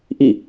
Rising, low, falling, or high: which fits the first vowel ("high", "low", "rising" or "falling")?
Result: falling